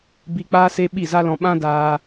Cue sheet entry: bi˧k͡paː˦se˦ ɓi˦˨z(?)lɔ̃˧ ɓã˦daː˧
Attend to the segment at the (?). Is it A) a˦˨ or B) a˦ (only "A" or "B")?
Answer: B